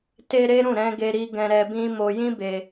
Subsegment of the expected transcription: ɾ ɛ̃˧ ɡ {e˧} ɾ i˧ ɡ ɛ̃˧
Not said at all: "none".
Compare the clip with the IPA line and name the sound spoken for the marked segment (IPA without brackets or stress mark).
e˧